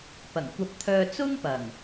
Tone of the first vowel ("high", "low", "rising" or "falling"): low